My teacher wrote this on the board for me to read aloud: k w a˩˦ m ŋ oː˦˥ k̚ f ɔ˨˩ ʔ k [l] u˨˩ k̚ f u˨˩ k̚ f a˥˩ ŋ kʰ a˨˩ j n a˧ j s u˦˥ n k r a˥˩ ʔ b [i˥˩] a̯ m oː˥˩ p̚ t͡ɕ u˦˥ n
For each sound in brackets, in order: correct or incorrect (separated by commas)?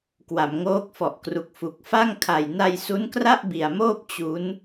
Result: incorrect, incorrect